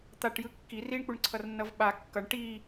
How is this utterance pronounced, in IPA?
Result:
t̪ a ʈ j ɯ kː i r i ɳ k͡p u ɳ ǀʰ ʌ r nː ʌ v ɓ a kː ʌ ɳ ʈ i

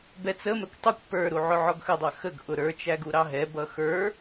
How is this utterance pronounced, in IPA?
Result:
b ɛ t͡s ə m ɛ kʷ tˤ u kʷ p ə˞ ɾ u ʕ ʊ ʕ ɔ ɡ x ə dˤ ɑ x ə ɡ ʔ ʊ ɾ ə˞ t͡ʃ æ ɡ u ɾ ɑ ɦ ɛ b ʌ x ə˞

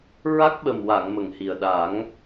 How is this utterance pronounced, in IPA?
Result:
ɹ a˦˥ k̚ ɓ ə˨˩ m w a˨˩˨ ŋ m ə˨˩ ŋ h i˨˩ ə̯ ɗ a˨˩˦ ŋ

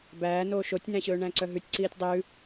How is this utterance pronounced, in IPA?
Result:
b æː n oː ʃ o tʲ n æ̃ ɕ ɵː ɳ æ̃ ǀ œ ɦ ʉ tʲ ǀ iː tʲ dˤ ʉ

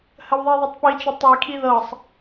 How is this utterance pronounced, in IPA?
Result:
h ə w ðˤ i ðˤ ɤ tˤ p i t͡ʃ ə tˤ i kʰ i ð ɤ sˤ

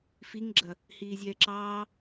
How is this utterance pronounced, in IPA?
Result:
f i ŋ ɡ͡ǁ ɐ | h iː zʲ ɛː ǁ ɑː

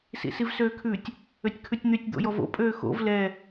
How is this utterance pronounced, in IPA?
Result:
s ḭ s i v s øː kʰ ʉ tʲ | ø tʲ kʰ ʉ tʲ n̪ y tʲ d̪ o̰ j ɔ v o̰ pʼ øː x o̰ v l ɛ

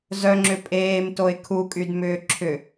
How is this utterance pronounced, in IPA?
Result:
z œ ŋ͡ǁ ʏ pʼ eː m t o ɪ̯ kʰ u kʼ y d m ʏː ǁʰ ʏ

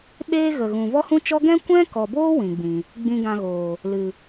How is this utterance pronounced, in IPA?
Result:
ɓ eː˦ ɣ ə˨ ɣ ũ˨ v ɔ˦ h ũ˦ t͡ʃ ɔ˦ ɡ ɛ̃˦ kʷ ɛ̃˦ k ɔ˨ b oː˦ w ĩ˨ ɡ͡b ĩ˨ | ɡ͡b ĩ˧ ɡ ã˧ ɣ oː˨ | l ɨ˨

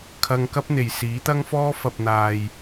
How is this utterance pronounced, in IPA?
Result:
kʰ ɐ˧ ŋ k ɐ˥ p̚ n̪ e˨ j s iː˨˥ t̪ ɐ˥ ŋ f ɔː˥ f ɐ˨ p̚ n̪ aː˨ j

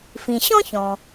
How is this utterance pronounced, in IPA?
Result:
f ĩ˩ ɕ ɔ̃˥ ç ɔ̃˩

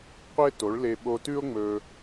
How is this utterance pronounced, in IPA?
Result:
qʷ e˥ t o˩˥ ɭ l e˧ ɓ o˧ t ʉ˥ o̯ ŋ͡m ɵ˥

